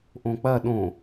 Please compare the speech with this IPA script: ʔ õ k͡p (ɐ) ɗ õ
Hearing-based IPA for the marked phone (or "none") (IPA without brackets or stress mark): ɐ